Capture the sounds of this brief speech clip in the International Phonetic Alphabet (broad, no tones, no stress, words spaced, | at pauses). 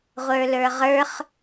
ʁʷə˞lə˞ʁə˞χ